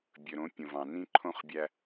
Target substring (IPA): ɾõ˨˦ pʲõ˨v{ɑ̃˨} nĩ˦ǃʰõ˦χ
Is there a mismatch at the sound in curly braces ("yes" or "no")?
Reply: no